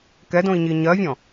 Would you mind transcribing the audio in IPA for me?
k ɛ d õ i̯ ɲ i ɲ ɜ vʲ ɔ̃

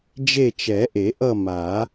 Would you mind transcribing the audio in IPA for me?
d͡ʒ e˦˨ t͡ʃ ɛ˨˩˦ ʔ e˨˩˦ ʔ ʌ˦˨ m a˨˩˦

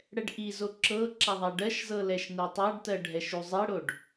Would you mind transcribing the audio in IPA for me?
ɽ ɛ ɖ ʔ i z o ǁ ɤ ǁ a ðˤ a ɖ ɜ ʃ z ɤ l ɛ ʃ n ɜ tˤ a ɖ t ɜ ɖʱ ɛ ʃ u zˤ e ɽ o ɖ

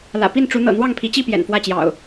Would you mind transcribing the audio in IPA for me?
l ä̰˨˩ p i˥˨ n ʈ͡ʂ u˨˦ n̪ ɤ̰˨˩ n̪ w ɑ˥˨ ŋ pʰ i˨˦ t͡ɕ i˥˨ p j ɛ̰˨˩ n f w ä˥˨ t͡ɕ j ɑ̰˨˩ ʊ̯

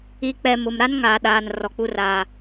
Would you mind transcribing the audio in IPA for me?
i˨ k͡p ɛ˨ m ʊ˨ m ɾ a˦ n ŋ aː˨ ɗ aː˨ n r ɔ˨ k͡p u˦ r a˦

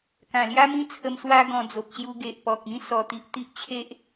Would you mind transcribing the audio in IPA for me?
k ã˨˩ l j a˦ m ĩ˦ t͡sʰ ə˧ m s w a˦ ɡ ɔ̃˧ d͡z o˨ p̚ ɕ j u˧ ɡ e˨ ʔ p ɔ˨ k̚ ĩ˦ s ɔ˧ t̪ i˦ ʔ t̪ i˦ ʔ t͡ɕʰ e˦ ʔ

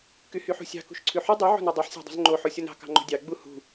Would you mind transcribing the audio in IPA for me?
k y h y ħ ṳ sʲ ɑ̤ k ṳ ʃ ǀʰ ʉ ħ y dˤ y ʕ o̤ n e dˤ o ħ sʲ ɑ̤ dˤ ṳ z ŋ͡ǃ o ħ o sʲ o n ɑ̤ k ɑ̤ ŋ͡ǃ o̤ dʲ ɑ ɡ͡b u h ṳ

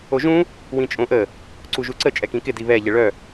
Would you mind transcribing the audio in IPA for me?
o ʒ ũ | w ĩ t͡ʃʼ õ ʔ ə | ǀ u ʒ u ǀ ə t͡ʃʼ ɛ k ĩ k ɪ d i β ɛ ʎ ɪ ɭ œ

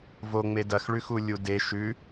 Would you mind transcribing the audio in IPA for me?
v o ŋ͡m e d ɐ x ɭ ʉ x u lʲ u d e ʃ ʉ

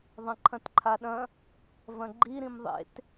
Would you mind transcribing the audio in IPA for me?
ðˤ ɐ̃ ǃʰ ɐ̃ t ǃʰ a ɗ ɐ̃ | v ɐ̃ ɡ͡ǃ i ɾ ĩ m ðˤ ḛ t

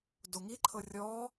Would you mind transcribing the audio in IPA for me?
d o ŋ i ǃʰ ɤ rʲ ɔ

